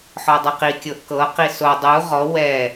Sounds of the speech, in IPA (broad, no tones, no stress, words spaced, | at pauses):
ħɔdˤɯqi kʲɤʔkɤ qiso dˤu ʁɔ wɛ